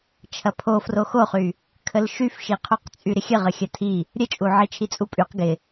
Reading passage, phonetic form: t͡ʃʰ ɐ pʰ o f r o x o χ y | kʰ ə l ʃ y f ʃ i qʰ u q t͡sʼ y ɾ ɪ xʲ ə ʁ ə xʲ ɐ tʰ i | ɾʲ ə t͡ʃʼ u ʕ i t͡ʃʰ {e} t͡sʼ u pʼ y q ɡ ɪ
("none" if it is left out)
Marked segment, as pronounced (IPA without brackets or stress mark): i